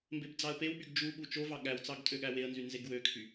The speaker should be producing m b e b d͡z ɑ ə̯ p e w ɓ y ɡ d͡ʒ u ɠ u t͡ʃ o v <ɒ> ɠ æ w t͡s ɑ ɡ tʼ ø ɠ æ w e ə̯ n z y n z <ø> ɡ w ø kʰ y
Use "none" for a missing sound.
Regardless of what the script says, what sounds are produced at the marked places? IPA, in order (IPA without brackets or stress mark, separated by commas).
ɑ, e